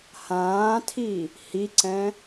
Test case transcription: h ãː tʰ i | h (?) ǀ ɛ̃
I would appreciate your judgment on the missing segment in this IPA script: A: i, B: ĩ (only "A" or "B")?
A